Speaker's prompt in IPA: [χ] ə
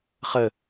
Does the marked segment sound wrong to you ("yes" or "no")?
no